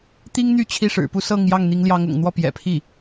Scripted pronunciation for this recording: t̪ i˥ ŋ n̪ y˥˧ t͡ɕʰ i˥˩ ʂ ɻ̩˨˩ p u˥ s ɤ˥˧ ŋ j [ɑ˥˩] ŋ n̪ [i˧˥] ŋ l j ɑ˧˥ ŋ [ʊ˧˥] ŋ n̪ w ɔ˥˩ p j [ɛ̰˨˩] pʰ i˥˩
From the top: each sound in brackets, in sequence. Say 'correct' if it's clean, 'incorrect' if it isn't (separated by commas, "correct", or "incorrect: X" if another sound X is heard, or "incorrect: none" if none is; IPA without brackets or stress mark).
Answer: correct, correct, incorrect: ʊ̰˨˩, correct